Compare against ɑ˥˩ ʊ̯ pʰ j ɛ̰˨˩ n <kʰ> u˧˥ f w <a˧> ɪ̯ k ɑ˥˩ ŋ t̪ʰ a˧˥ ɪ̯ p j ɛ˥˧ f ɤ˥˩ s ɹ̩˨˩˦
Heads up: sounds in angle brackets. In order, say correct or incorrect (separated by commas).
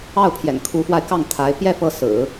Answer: correct, correct